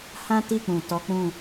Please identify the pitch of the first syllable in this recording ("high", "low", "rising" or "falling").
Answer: high